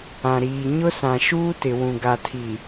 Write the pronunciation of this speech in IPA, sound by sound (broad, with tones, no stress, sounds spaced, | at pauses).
ã˨ ɾ iː˨ ɲ ʊ˦ s ã˨ ʃ uː˦ t ɪ˨ w ũ˨ ɡ a˨ tʰ i˨